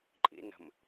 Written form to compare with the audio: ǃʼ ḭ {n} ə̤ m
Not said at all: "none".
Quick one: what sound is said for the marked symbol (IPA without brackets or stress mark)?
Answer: n